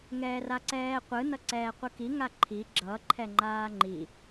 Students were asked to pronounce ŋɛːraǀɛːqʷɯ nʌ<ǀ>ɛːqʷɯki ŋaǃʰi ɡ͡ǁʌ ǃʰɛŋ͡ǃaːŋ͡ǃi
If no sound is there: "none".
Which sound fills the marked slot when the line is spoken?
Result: ǀ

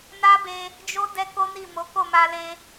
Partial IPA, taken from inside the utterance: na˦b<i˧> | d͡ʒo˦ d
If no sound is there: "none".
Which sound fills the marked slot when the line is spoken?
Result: e˧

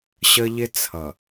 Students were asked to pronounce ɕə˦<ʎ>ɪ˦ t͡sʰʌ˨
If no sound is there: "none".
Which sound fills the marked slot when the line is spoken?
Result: ʎ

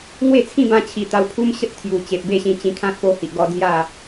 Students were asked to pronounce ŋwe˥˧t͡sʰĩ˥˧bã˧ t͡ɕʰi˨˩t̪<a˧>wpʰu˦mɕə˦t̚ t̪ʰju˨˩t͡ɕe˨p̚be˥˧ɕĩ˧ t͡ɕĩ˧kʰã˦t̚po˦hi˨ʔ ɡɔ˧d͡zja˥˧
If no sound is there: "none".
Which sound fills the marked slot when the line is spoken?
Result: a˧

